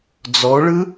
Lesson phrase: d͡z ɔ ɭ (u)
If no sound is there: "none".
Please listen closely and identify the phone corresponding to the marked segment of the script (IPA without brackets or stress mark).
ɯ